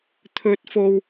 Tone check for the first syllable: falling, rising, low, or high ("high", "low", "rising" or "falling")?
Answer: rising